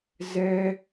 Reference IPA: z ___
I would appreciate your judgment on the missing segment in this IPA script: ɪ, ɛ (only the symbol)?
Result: ɛ